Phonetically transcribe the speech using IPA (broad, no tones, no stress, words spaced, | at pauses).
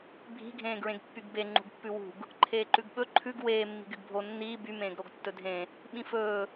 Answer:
bʱi̤ ɡʱẽːɡɹẽɡpːyɡbe ŋ͡ǃṳɡpːʉwṳɡ | ǃʰeːǃʉɡɓɵ ǃʰʉɡ weː mːi̤ɡyɡbʱo nːiː by mẽːɡɾoɡtːɵdʱẽ | ɓĩfɵː